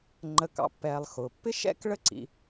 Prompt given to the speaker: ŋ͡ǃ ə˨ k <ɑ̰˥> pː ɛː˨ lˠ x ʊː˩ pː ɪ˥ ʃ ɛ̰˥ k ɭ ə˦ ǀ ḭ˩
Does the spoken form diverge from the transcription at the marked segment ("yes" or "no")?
yes